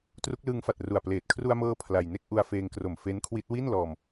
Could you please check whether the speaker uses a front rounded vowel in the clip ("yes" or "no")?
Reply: no